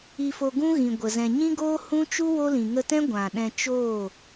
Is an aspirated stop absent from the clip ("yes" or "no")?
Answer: yes